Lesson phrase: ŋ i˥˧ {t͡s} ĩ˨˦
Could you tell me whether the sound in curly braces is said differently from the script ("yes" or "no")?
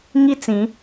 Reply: no